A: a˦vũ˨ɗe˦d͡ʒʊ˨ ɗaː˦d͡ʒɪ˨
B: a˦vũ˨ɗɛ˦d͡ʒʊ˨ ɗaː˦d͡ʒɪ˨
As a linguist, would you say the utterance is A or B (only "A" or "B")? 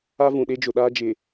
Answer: A